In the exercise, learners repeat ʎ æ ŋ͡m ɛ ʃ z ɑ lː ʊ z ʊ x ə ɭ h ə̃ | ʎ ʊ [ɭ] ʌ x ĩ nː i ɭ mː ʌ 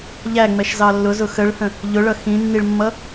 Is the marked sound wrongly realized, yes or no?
no